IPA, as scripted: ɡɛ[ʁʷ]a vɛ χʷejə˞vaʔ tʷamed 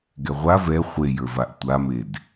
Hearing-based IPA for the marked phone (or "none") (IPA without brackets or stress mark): ʁʷ